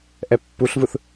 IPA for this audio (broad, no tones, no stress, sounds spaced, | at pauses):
ʔ ɛ pː u ɬ v ɯ θ